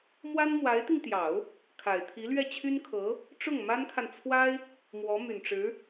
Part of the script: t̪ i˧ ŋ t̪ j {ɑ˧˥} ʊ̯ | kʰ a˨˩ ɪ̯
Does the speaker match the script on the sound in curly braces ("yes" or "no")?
no